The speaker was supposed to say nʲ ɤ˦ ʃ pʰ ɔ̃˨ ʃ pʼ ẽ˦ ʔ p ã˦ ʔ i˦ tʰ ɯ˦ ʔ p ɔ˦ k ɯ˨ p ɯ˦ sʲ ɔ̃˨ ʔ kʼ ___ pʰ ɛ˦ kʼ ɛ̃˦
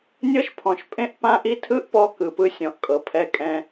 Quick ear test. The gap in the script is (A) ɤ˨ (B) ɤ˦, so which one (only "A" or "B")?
A